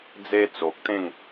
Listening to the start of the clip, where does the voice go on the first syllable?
high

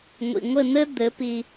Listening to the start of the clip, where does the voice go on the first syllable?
low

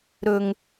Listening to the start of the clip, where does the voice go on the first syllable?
high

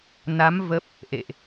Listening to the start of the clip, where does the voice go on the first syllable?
rising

